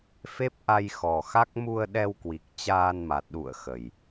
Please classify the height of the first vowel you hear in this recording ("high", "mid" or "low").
mid